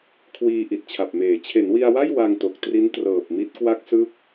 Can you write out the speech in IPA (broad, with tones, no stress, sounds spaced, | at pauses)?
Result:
kʰ w iː˧ ʔ i˨˩ t̚ t͡ɕʰ a˨˩ p̚ m eː˩˦ t͡ɕʰ e˩˦ n w i˧ a̯ w a˥˩ j w a˧ ŋ t o˨˩ k̚ t r i˦˥ n t r ɤː˨˩ p̚ m i˦˥ t̚ k w a˦˥ k̚ s ɯ˦˥ k̚